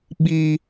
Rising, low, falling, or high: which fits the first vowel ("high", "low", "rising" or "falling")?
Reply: high